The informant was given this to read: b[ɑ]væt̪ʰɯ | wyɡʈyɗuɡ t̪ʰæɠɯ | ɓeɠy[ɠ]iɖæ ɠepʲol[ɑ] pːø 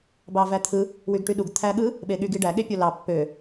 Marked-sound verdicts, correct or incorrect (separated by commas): correct, incorrect, correct